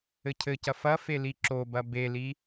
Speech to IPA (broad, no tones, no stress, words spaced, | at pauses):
ɘcʰɘcɐ fɐ feliǁobɐ beli